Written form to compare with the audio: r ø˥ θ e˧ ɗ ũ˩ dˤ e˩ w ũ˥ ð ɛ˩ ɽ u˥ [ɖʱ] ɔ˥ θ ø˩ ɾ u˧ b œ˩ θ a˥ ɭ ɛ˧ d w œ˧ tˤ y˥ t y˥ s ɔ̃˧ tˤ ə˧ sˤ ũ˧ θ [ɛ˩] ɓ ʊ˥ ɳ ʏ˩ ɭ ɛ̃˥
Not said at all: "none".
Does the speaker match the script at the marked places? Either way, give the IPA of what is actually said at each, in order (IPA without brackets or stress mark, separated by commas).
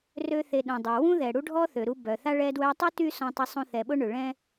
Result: ɖʱ, ɛ˩